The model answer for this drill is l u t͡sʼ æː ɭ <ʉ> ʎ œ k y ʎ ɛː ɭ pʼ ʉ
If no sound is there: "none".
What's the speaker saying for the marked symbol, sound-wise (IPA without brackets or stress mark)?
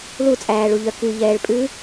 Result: u